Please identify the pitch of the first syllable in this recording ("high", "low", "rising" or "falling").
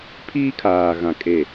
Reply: high